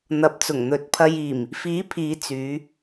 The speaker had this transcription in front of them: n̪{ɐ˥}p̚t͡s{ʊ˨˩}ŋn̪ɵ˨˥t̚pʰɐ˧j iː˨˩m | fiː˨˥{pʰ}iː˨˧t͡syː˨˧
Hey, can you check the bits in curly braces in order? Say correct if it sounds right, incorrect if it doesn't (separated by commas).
incorrect, correct, correct